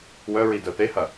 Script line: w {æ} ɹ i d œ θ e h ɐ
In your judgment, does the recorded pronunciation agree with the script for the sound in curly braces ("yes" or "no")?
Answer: no